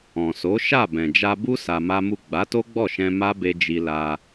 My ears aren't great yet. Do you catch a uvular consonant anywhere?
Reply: no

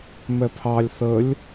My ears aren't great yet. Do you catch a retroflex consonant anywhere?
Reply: no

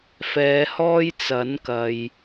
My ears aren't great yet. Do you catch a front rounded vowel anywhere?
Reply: no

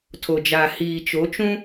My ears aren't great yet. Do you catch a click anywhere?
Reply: no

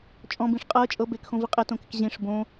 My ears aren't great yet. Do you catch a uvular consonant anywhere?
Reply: yes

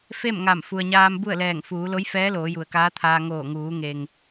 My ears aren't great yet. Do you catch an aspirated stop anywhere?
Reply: yes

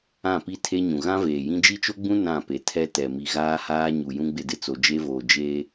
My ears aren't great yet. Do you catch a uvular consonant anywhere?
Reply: no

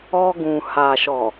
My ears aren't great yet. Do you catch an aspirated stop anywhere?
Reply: no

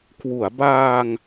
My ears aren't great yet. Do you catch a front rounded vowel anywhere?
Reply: no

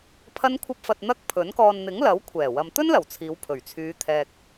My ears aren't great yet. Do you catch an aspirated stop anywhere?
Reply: yes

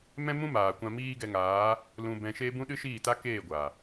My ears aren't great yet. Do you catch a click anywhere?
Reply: no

